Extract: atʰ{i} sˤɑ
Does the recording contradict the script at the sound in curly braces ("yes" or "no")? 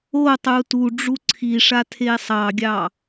yes